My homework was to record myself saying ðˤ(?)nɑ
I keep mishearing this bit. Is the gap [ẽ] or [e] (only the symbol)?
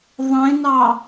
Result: ẽ